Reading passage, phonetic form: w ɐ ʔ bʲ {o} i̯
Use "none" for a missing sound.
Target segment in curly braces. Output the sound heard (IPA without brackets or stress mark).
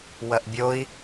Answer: o